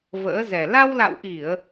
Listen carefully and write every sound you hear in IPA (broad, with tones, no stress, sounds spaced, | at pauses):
v ə̰ː˧˥ z ɛ˨˩ l a˧ w l a̰˧˨ w ʔ i˧˩˨ ə̯